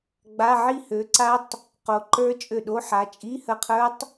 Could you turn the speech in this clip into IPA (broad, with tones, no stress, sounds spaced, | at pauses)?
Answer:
ɡ͡b a˧˥˧ ʕ i˦˨ h ø˨˦ ǀ a˦˥ tˤ | q o˨˦ ǃ ə˞˦˥ t͡ʃʼ ø˦˨ ɗ o˧˥˧ ħ a˨˦ t͡ʃʼ i˧˥˧ h ə˦˨ qʰ ə˞˦˥ tˤ